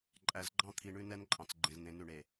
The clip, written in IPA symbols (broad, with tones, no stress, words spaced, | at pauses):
ǃʼæ˨zɡ͡ǃɑ̃˦ t̪ʰi˨ɳʉ˦nɛ˦nǃʼɑ̃˨t͡s ɡ͡ǃẽ˨zn̪ẽ˨˦nʉ˨ɳe˨